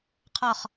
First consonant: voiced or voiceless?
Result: voiceless